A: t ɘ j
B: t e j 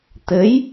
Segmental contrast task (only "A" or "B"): A